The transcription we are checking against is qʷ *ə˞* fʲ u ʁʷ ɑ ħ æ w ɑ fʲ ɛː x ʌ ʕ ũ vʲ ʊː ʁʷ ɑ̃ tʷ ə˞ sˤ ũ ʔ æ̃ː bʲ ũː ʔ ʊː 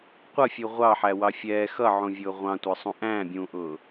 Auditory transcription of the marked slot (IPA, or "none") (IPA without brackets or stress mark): ʌ